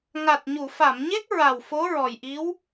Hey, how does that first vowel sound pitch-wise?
low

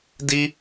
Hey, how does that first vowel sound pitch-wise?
high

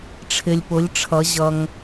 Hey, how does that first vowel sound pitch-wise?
low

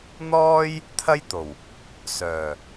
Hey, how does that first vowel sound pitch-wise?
high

